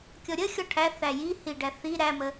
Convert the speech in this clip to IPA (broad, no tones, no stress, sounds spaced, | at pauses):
kʲ ɔ ɾʲ ə xʲ ɔ ʈʰ æ θ æ j i h i ɖ æ θ i ɾ æ m ə